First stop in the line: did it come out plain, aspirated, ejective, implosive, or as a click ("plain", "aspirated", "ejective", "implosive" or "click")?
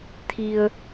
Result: aspirated